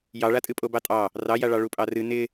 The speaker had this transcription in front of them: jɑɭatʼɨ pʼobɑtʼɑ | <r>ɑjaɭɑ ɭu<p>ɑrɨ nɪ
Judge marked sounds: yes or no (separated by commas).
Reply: yes, no